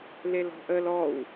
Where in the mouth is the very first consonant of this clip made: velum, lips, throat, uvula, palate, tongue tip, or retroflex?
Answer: tongue tip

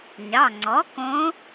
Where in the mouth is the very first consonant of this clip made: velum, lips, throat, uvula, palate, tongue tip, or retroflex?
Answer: palate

